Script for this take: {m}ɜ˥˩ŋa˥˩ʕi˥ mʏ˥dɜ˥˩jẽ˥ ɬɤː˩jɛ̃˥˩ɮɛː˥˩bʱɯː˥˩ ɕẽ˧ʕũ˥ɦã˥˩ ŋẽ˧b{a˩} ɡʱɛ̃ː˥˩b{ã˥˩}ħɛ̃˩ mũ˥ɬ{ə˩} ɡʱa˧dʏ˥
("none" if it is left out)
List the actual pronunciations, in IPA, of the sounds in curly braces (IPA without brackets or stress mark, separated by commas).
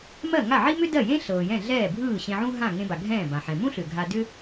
m, a˩, ã˩, ʏ˩